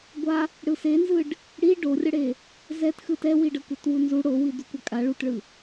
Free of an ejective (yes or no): no